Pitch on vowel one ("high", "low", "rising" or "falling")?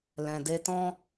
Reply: low